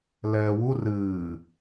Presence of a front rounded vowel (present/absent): absent